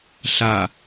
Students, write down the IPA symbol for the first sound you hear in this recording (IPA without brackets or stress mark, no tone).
ɬ